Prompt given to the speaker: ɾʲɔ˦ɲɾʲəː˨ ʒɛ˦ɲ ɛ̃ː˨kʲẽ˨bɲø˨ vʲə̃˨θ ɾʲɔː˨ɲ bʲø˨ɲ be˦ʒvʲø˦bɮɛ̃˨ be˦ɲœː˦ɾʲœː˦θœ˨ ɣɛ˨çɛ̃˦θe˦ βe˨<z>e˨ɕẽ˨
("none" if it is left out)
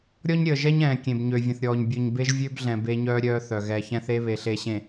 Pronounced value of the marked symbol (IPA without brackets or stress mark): ɬ